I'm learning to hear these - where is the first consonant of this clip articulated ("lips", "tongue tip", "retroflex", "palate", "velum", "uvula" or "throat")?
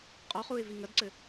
uvula